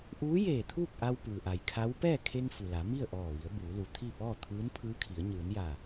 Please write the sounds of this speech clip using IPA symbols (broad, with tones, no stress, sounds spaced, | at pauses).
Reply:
ʔ uː˧˥ j eː˧˩ t̪ʰ uː˥˨ k̚ ʔ a˧ w p ɯː˩ ʔ a˩ j kʰ a˧˥ w p ɛː˥˨ kʰ e˧ ŋ f u˩ l a˩˧ m i˥˨ ə̯ ʔ ɔː˧˩ ʋ i˩˧ ə̯ b uː˩˧ l u˩˧ t̪ʰ i˥˨ p ɔː˥˨ t̪ʰ ɯː˧˥ n pʰ ɯː˧˥ kʰ i˩˧ ə̯ ɲ ɯː˩˧ n j a˧˩